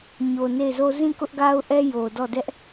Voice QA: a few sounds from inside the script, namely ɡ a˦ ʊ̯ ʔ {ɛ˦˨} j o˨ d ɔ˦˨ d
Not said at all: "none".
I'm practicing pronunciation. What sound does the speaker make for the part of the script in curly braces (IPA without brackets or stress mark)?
ɛ˦